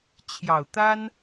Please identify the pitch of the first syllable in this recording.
low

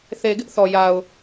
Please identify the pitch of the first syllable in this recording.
low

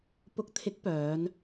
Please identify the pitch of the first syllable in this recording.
rising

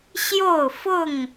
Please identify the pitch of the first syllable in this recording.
falling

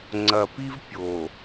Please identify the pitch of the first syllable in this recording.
low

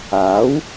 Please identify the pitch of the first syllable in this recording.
rising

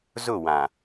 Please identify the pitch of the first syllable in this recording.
falling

